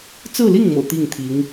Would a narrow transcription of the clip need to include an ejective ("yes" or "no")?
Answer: no